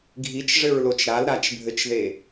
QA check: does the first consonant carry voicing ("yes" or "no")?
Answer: yes